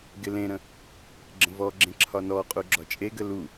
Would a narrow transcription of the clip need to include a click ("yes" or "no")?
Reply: yes